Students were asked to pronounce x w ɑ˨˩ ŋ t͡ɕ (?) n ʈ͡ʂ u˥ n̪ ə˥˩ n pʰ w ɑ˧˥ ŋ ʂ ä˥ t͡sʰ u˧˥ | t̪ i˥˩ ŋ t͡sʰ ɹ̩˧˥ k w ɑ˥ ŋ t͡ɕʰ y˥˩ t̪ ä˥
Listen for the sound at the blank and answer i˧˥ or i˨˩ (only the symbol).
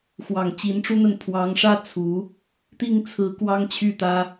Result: i˧˥